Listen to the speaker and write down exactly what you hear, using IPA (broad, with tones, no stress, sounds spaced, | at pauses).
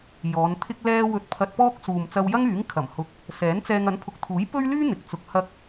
j ɔː˨˧ n t̪ʰ ɪ˥ k̚ l ɛː˧ w ɵ˧ t̚ pʰ ɐ˧ t̚ p ɔː˥ k̚ s uː˨ m t͡s ɐ˧ w j ɐ˥ ŋ yː˨˥ ŋ kʰ ɐ˨˩ m h ʊ˨˥ k̚ | s ɛː˨˥ n t͡s ɛː˧ ŋ ɐ˨˥ n pʰ ʊ˨ k̚ t̪ʰ uː˨˥ j p ɵ˥ ɥ l yː˥ n̪ ɪ˨ k̚ t͡s ʊ˧ k̚ h ɐ˧ k̚